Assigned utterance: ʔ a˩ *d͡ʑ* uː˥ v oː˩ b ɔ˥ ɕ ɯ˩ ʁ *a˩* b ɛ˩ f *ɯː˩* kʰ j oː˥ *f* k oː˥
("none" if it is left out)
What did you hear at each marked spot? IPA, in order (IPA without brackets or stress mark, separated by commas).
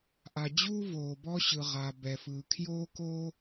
d͡ʑ, a˩, ɯː˩, none